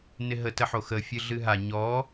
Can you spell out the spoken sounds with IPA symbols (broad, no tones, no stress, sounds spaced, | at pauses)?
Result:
n ɪ ɦ ə t ə ħ o x ə fʲ ɨ ɮ ɨ ɦ a ɲ ɔ